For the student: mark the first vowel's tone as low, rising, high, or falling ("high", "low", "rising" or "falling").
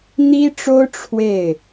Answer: high